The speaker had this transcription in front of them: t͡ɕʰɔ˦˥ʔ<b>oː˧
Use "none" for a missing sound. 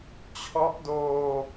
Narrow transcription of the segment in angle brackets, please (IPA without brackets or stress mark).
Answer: d